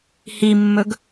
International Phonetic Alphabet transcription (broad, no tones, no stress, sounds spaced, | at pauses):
h i mː ɵ ɡ